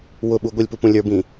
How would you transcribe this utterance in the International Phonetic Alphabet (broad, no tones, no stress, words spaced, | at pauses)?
wʊɓu ɡʷɪlʲpupũ lʲə˞bĩ